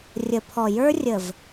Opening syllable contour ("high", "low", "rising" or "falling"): low